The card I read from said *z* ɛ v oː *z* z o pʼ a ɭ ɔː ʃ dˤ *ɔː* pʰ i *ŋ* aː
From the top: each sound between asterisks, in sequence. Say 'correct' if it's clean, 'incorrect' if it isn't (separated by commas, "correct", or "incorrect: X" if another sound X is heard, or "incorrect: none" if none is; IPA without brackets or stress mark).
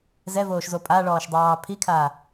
correct, incorrect: ʃ, incorrect: ɑː, incorrect: kʰ